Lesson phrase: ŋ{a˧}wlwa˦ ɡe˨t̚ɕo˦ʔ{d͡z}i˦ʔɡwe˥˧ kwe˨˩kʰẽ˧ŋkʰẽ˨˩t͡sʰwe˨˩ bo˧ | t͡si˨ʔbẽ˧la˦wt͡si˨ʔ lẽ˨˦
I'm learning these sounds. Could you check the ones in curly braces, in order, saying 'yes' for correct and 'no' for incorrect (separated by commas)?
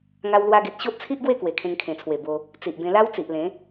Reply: no, no